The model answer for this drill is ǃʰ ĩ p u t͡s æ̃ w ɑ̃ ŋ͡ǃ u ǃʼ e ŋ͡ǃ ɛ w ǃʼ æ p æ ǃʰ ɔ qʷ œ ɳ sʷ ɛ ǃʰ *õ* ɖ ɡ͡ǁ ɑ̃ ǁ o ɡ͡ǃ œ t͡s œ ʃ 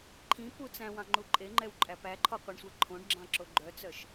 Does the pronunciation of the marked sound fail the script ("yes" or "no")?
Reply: no